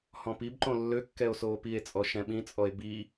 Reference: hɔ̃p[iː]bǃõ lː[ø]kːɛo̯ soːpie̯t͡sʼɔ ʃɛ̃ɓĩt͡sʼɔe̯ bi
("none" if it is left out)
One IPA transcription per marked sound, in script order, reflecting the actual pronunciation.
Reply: i, ø

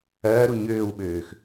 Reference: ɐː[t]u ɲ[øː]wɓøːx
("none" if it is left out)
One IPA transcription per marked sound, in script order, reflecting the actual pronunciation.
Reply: ɾ, øː

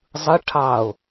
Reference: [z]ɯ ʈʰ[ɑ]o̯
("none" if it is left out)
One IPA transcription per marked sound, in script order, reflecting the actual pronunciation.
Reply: zˤ, ɑ

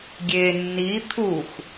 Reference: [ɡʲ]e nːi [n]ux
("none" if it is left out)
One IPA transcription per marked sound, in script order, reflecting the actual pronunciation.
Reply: ɡʲ, t̪ʰ

